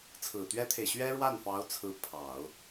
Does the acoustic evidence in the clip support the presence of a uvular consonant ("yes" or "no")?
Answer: no